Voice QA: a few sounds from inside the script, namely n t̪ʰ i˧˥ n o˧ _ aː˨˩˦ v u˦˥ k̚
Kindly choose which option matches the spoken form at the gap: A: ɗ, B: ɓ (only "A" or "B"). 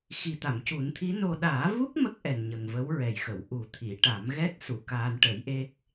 A